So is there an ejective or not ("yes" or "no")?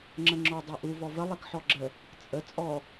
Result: yes